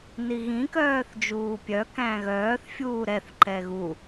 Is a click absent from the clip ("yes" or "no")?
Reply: no